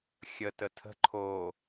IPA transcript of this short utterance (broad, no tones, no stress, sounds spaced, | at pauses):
xʲ ə t ə tʰ ə̤ ǃʰ o